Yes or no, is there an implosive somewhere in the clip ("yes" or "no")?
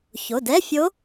no